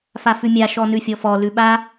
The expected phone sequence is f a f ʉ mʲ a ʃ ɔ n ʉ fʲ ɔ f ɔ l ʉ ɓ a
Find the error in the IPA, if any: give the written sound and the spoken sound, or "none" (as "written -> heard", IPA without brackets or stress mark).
none